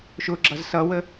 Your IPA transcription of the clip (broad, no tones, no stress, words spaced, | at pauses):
ʃʊɡ͡ǁʌz sʌwə